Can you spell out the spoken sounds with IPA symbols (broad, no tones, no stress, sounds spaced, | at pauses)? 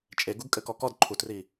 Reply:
t͡ʃʼ e ɡ u ɡ kʼ ɘ k ɔ k ɔ d ǃʰ u t r i